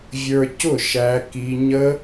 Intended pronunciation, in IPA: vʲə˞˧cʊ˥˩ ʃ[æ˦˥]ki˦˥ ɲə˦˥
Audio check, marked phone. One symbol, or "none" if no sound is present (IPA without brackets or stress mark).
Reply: æ˦˥